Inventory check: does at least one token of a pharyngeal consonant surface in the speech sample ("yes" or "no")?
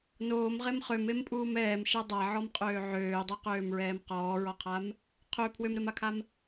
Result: yes